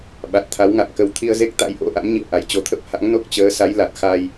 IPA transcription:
ɓ a˨˩ t̚ t̪ʰ a˨˦ w ŋ a̰˧˨ m k ə˨˦ w t̪ʰ i˧ ə̯ z e˦˥ k̚ t̪ a̰˧˥ j ʔ o̰˧˥ ʔ a̰˧˥ m ɲ ḭ˧˨ ə̯ ʔ a˧˩ j t͡ɕ o˨˦ t̪ʰ ə˦˥ p̚ h a̰˧˥ ŋ n o˦˥ k̚ t͡ɕ əː˨˦ s a˨˦ j l a˨˩ t̚ x a˧ j

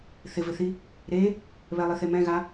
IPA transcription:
θ ɪ v ɪ θ i | ɾ e | β ɛ lˠ i θ e m ɛ̃ ɣ a

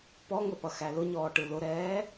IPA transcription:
p ɔ ŋ ə p ʌ x æ l ʊ ɲ ɔː ʈ ɯ l ʊ ɾ ɛː

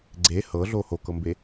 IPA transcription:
ɡ͡ǀ e h ɤ ɮ o h o k ɤ m b e

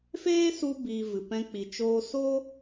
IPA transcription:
f eː˦ s u˧ b iː˨ v ɨ˨ p ɛ̃˧ k͡p i˨ t͡ʃ oː˧ s oː˦

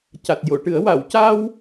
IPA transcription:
c a˨˩ t̚ j o˨˩˨ ʈ ɨ˨˩˦ ə̯ w a˨˩˨ w c a˧ w

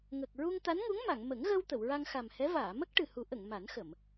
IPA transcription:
ŋ ə˨˩ k̚ ɹ u˧ ŋ t̪ a˧˥ n ŋ u˧˥ ŋ m a˨˩˨ ŋ m ə˨˩˦ ŋ ɣ ə˧ w t̪ ə˨˩˨ w ɹ a˧ ŋ x a˨˩ m h ɛ˧˥ v aː˨˩˨ m ə˦˥ k̚ ʈ ɨ˨˩ h u˨˩˦ ʔ ə˨˩˨ ŋ m a˨˩˦ n x ə˨˩˨ m

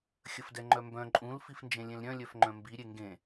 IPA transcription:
xʲ ə f d ɛ ŋ͡ǃ œ m b œ̃ ǃʼ ũ l f i f n d͡ʒ ẽ lʲ ẽ l ɾʲ œ̃ lʲ œ f ŋ͡ǃ œ̃ m b i ɾʲ e ŋ ɡ ẽ

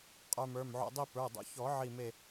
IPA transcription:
qʼ ə˞˧ m ə˞˩˧˩ m ʕ o̰˧ dˤ i˥˧ p ə˞˩˧˩ dˤ o̰˧ ç ɔ˨˩˦ ʕ i˧˩ m e˧˩

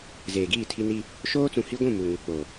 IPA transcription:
z eː˨ ɡ iː˦˨ tʰ i˦ n i˦ | ʃ oː˦ t͡s ũ˨ h i˦ ɡʷ ũ˦˨ m u˨ ŋ u˨ k͡p o˨

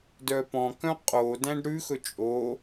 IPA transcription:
d œ p ɔ̃ k œ̃ qʼ o d æ̃ ɖ ɾ ʉ x ɵ t͡ʃʼ o

